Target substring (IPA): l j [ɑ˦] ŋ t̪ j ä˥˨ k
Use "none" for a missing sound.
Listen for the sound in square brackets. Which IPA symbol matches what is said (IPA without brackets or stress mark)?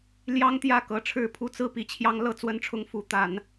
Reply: ɑ˦